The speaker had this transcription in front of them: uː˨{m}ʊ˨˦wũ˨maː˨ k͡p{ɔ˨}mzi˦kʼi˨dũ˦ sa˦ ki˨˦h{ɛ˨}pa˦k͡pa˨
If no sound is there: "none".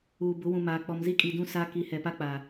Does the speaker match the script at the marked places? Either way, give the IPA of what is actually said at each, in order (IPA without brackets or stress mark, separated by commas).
b, ɔ˨, ɛ˨